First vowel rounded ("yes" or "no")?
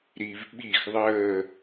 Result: no